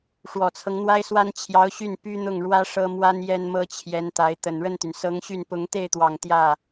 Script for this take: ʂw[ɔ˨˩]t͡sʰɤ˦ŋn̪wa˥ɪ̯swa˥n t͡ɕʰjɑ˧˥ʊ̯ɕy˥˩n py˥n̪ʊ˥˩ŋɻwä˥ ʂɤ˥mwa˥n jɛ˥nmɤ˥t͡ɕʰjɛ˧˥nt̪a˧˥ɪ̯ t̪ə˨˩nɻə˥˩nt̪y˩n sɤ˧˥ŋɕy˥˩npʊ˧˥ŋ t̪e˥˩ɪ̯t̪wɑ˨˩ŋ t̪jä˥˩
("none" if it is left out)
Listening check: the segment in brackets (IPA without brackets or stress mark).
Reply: ɔ˨˩